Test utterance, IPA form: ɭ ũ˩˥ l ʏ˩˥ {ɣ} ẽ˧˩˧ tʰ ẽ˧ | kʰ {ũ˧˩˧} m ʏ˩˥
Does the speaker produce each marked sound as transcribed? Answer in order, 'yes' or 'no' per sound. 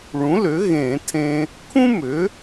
yes, no

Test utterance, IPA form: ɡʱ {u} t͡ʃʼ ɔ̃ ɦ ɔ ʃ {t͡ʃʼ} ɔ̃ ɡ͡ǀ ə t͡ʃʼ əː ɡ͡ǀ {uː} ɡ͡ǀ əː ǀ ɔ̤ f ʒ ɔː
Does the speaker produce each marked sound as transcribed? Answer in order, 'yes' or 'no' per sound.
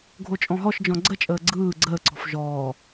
no, no, no

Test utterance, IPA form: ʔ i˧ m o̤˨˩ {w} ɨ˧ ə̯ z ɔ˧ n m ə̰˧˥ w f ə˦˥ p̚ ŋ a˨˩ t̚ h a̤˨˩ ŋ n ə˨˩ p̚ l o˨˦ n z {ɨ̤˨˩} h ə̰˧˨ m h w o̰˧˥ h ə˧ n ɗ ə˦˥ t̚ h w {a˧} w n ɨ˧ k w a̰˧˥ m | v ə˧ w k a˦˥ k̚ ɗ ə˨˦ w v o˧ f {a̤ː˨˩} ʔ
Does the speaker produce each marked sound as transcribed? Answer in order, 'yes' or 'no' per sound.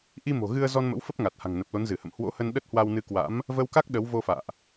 no, no, yes, no

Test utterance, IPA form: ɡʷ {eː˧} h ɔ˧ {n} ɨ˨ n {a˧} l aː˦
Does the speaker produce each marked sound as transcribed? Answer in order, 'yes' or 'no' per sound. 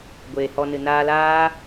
no, yes, no

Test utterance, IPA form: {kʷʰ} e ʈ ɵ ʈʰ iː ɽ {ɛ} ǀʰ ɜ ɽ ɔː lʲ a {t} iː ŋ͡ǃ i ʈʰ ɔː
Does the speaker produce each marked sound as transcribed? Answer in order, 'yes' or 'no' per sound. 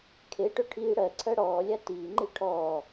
no, no, yes

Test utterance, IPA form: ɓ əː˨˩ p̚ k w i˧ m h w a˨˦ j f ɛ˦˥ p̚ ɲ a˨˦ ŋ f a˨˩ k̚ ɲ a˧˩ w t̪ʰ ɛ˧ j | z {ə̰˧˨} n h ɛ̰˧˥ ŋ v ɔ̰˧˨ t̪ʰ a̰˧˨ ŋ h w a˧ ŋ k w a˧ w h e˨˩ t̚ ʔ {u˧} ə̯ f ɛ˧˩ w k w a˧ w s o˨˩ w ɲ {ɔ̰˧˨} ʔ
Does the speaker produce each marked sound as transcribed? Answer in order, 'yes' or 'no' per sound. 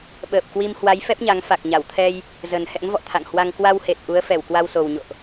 no, no, no

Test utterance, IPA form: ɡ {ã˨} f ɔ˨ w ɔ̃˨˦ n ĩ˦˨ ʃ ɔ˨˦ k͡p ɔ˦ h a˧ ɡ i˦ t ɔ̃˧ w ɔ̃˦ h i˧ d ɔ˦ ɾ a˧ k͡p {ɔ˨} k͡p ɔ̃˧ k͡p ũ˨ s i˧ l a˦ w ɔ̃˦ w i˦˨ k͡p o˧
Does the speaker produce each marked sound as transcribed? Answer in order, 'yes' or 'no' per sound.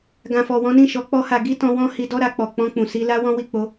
yes, yes

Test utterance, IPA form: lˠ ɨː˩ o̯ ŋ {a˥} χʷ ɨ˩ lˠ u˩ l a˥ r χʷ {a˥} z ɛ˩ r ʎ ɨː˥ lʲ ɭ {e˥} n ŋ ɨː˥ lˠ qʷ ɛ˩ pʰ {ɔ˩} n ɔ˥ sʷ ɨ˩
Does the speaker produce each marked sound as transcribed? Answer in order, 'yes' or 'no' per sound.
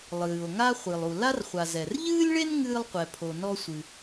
yes, no, yes, no

